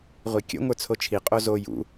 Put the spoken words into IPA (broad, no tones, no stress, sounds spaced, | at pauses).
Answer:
ʁʷ i kʲ ə̰ ŋʷ ə˞ t͡sʰ o t͡ʃʰ i qʼ o z o j ṵ